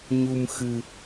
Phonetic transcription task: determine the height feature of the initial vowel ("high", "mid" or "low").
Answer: high